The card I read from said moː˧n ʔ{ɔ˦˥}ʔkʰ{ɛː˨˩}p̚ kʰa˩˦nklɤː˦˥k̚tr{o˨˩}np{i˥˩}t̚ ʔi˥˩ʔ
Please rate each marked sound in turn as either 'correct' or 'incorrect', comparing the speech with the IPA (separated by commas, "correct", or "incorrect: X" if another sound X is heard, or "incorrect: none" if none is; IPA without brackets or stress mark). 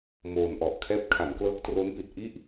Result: incorrect: ɔ˨˩, incorrect: ɛː˦˥, incorrect: o˦˥, incorrect: i˨˩